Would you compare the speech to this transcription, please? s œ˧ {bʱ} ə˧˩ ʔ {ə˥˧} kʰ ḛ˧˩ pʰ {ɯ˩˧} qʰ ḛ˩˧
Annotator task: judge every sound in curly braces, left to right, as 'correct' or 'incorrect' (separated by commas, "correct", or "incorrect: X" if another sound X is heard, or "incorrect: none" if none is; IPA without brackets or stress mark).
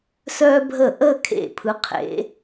correct, correct, correct